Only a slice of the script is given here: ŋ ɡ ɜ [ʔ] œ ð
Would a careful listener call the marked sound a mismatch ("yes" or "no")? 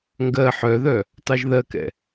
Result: yes